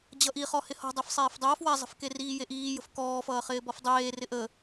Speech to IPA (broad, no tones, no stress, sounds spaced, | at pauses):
d͡ʑ ʌ ʔ i χ ɔ h ɪ h ɔ̤ dˤ e f sˤ eː f dˤ ɐː f w a zˤ ə̤ f k e r iː j e ʔ iː j ə̤ f k ɔː f ʌː χ ɪː b ɔ f dˤ eː r ɪ ʔ ə